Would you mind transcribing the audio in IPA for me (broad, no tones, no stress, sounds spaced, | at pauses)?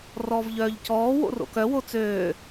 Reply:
r ɔː v ʎ œː ʎ c ɔː w o̰ r o̰ k œ w o t͡s øː